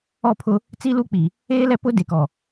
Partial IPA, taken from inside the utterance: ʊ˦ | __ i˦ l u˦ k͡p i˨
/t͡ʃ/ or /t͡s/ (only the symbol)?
t͡s